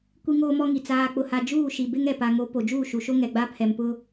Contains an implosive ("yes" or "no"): no